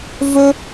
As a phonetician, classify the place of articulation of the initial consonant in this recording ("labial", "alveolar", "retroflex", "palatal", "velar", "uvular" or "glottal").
labial